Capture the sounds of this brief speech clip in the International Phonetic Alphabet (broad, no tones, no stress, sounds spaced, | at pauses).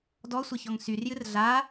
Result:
d ɔ sʷ ɘ ç ɔ ŋ s y r j ɨ r ɮ a